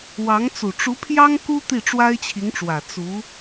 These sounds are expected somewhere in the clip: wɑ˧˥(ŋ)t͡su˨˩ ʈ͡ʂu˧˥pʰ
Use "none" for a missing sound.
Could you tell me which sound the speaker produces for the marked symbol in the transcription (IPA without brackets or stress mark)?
ŋ